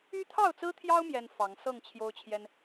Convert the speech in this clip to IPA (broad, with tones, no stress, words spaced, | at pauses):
y˦t̪ʰɑ˥˨ʊ̯t͡sɹ̩˦t̪ʰjɑ˦ʊ̯ mjɛ˦nfɑ˨˦ŋ sɤ˥˨ŋt͡ɕʰjo˦ʊ̯t͡ɕʰjɛ˦n